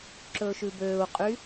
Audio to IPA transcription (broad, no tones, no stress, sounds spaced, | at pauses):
ǁ ɵː ʃ ʉ b øː u̯ qʼ y